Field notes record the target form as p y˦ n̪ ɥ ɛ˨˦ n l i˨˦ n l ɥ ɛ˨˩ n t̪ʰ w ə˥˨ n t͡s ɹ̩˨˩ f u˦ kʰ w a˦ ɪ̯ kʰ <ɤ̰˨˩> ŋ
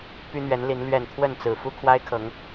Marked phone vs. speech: incorrect: ɤ˨˦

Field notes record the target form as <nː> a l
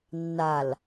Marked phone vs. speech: correct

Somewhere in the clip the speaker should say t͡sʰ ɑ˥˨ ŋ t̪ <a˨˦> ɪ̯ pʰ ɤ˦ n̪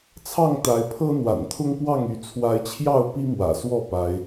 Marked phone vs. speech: correct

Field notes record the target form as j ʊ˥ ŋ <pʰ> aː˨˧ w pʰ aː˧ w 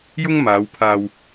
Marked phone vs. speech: incorrect: m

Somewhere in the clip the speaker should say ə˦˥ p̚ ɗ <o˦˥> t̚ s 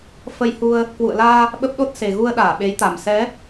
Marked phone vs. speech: correct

